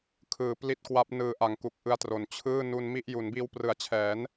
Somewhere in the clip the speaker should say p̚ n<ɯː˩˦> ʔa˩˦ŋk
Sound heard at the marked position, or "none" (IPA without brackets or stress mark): ɯː˩˦